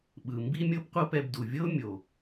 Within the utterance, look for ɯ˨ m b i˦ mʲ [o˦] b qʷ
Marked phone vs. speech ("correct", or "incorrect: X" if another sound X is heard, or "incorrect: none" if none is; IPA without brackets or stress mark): incorrect: ɤ˦